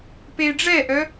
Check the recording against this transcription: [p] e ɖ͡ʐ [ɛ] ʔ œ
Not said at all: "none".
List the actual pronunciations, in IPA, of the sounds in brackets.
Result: p, ɛ

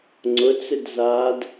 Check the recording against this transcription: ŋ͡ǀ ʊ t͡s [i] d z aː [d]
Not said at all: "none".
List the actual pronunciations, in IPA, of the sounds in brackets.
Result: ɪ, d

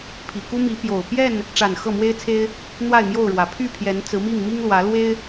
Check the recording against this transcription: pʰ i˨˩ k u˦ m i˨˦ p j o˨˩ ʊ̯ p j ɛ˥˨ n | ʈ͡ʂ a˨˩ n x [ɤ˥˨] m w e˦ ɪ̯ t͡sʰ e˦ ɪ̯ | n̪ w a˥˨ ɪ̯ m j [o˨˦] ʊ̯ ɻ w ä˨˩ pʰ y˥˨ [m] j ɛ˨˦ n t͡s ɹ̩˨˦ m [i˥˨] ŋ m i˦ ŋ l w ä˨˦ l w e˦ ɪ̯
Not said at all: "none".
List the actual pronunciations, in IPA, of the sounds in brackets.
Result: ɤ˥˨, o˥˨, pʰ, i˥˨

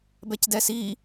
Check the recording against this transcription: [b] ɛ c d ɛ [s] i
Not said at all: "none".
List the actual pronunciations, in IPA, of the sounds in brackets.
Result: b, s

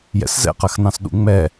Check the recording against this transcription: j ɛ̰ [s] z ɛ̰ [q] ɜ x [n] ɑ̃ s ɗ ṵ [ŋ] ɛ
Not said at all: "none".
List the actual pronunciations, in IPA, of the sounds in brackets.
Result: s, q, n, ŋ͡m

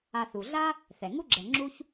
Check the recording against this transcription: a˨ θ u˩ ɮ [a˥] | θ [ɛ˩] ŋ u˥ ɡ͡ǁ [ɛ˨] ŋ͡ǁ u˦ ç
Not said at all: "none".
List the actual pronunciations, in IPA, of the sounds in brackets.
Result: a˥, ɛ˩, ɛ˨

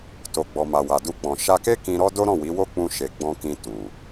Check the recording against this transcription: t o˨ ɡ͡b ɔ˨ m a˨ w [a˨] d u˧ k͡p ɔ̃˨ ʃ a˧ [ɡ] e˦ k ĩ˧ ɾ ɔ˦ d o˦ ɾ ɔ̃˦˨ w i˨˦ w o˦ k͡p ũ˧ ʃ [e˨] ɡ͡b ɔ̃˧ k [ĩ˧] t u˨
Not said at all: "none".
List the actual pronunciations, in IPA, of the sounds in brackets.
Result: a˨, k, e˨, ĩ˧

